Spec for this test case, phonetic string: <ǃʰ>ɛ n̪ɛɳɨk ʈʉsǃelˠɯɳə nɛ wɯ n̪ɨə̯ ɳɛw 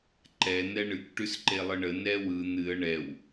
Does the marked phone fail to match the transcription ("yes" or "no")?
yes